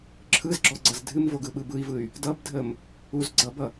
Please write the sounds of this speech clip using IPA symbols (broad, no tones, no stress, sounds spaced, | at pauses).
ǁʰ ɯ z ɡ͡ǁ ɔ ɡ͡ǀ ʌ z dʱ ɨ m v o ɡ ɯ ɓ ɯ b ɯ i̯ v ɯ y̯ | d ʌ b dʱ ə m | u z ɡ͡ǀ ʌ b ʌ